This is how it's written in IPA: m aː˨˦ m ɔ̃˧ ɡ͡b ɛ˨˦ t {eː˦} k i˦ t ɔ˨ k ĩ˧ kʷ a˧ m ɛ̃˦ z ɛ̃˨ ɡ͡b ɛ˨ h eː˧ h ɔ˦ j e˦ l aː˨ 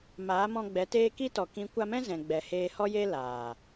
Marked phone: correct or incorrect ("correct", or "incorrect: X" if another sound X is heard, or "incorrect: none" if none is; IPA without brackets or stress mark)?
correct